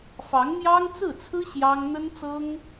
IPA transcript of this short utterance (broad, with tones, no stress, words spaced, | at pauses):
fɑ˧˥ŋn̪jɑ˥ŋt͡sɹ̩˥˩t͡sʰɹ̩˥ ɕjɑ˥ŋ n̪ə˥nt͡sɤ˥ŋ